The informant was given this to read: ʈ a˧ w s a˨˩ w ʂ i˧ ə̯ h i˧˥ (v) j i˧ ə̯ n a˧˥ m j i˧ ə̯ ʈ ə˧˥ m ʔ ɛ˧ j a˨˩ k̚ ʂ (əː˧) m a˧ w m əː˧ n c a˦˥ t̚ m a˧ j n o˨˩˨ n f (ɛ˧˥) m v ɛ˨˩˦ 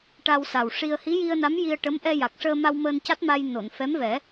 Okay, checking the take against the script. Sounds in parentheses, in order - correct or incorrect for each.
incorrect, correct, correct

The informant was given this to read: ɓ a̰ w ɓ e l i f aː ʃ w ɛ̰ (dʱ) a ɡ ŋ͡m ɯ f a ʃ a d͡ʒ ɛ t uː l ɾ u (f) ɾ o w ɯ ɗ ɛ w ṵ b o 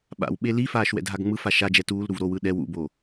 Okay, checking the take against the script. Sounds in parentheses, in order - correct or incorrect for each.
correct, incorrect

